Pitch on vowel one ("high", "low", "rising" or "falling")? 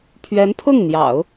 rising